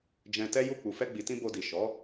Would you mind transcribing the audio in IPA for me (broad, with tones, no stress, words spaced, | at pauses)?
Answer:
d͡ʒɛ̃˧tɛ˦ju˦˨ k͡pu˨fɛ˧ɡ͡bi˨tĩ˧ bo˧di˨ ʃɔ˨˦